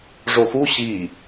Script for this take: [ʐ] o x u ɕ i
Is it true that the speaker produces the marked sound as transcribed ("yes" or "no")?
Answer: yes